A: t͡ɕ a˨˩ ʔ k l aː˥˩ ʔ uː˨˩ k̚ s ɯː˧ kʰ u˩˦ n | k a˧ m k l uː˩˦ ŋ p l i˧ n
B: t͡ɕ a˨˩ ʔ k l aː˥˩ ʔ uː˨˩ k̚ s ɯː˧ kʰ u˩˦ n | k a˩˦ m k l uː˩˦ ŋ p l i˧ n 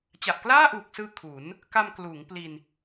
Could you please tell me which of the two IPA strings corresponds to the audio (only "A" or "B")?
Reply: A